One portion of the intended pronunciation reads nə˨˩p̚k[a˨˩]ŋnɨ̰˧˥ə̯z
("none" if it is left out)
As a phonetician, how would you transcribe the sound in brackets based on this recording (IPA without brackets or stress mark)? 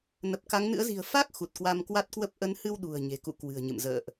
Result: a˨˦